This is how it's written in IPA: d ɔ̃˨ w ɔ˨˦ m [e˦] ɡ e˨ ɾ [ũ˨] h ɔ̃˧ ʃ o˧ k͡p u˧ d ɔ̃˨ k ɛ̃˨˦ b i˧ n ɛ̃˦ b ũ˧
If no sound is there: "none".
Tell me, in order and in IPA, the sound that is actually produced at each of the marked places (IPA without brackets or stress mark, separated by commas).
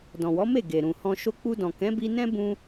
e˦˨, ũ˨